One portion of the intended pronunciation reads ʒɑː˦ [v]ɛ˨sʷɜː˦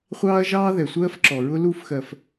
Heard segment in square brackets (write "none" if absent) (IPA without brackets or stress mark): ð